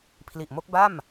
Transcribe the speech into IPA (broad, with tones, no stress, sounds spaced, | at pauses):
pʰ l i˨˩ ʔ m o˦˥ k̚ b a˥˩ m